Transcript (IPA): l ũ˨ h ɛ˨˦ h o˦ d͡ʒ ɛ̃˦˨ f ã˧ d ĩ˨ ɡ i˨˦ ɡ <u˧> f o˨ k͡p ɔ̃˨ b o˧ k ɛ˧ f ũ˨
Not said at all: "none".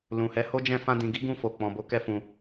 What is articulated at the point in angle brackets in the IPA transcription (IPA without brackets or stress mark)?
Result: ũ˧